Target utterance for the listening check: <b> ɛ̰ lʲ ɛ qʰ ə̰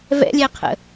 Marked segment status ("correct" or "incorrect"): incorrect